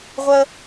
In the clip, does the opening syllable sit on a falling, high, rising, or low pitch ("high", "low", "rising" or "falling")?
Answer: high